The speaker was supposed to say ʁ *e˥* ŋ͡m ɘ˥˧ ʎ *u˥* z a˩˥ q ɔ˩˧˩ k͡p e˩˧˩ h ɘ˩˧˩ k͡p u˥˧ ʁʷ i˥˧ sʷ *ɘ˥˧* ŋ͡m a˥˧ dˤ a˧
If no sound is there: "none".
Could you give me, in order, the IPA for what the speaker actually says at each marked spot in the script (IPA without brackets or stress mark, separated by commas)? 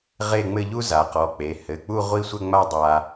e˥˧, u˥, ɘ˥˧